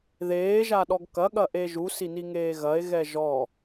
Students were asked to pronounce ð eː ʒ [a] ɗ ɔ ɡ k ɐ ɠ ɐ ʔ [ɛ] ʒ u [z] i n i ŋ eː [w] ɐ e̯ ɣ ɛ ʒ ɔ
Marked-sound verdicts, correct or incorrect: correct, incorrect, incorrect, incorrect

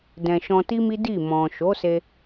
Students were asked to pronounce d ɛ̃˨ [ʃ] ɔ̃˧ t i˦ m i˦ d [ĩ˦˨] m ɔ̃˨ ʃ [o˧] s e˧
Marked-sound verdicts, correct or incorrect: correct, incorrect, incorrect

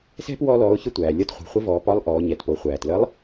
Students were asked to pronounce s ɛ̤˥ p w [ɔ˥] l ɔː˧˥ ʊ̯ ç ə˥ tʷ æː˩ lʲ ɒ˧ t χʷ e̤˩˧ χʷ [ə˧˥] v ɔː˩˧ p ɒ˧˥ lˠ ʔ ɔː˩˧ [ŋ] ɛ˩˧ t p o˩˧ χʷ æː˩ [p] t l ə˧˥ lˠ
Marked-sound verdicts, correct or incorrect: correct, correct, incorrect, incorrect

